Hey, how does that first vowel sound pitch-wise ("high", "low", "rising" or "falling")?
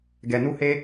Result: low